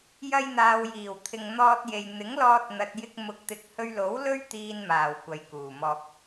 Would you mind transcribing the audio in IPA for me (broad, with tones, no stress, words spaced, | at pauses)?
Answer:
jɐ˧jn̪aː˨wjiː˨˩w t̪ʰɪ˨ŋn̪ɔː˧t̚je˨j n̪ɪ˨˥ŋlɔː˧t̚n̪ɐ˨t̚jɪ˧k̚ mʊ˨˥k̚ t̪ɪ˨k̚hɵ˧ɥlo˨˥w lɵ˥ɥt̪iː˧nmaː˨˩w kʷɐ˨jkuː˨˩mɔː˧k̚